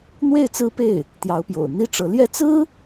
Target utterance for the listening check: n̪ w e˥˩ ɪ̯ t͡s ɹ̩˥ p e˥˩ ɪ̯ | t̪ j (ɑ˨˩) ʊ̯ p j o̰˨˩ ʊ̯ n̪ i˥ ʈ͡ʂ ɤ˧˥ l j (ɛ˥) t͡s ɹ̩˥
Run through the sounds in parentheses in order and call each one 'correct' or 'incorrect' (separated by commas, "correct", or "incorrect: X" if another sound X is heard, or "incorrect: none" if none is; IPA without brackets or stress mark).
incorrect: ɑ˧˥, correct